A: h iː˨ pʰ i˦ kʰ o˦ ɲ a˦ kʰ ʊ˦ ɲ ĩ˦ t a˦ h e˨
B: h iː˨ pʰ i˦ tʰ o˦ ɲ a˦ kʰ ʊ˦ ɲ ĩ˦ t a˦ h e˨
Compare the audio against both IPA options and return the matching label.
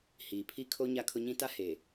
A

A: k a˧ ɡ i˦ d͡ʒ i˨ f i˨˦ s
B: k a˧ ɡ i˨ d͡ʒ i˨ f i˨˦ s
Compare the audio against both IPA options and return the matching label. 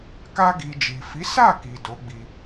B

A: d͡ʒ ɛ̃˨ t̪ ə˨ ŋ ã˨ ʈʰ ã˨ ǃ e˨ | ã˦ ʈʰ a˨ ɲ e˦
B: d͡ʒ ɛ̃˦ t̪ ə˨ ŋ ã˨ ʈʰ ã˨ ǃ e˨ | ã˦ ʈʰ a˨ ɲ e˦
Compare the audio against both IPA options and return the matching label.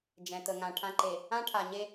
A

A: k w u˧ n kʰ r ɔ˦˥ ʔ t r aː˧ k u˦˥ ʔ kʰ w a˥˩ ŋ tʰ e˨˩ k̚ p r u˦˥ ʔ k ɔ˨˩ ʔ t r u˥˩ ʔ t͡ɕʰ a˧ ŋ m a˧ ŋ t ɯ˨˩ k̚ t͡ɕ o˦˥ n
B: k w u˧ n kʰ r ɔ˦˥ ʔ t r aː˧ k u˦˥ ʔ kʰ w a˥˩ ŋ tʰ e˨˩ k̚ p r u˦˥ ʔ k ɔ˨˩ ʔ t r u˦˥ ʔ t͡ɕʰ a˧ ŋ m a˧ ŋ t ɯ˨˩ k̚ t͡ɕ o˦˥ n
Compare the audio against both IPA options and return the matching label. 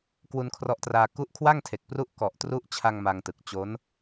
B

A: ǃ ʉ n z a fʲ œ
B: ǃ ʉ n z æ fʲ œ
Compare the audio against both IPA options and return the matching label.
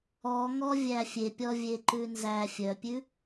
B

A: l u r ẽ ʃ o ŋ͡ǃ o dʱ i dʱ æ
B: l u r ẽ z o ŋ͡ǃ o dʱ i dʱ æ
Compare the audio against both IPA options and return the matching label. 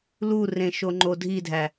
A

